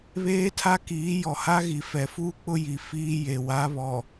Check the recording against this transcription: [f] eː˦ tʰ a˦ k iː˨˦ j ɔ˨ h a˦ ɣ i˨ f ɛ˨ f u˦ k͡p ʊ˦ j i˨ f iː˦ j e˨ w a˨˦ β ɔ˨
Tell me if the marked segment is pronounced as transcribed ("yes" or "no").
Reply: no